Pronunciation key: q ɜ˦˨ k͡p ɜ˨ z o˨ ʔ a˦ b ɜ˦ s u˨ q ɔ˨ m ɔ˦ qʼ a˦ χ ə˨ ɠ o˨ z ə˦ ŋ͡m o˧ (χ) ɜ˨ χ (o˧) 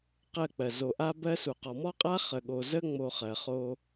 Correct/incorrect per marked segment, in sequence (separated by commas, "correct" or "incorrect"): correct, correct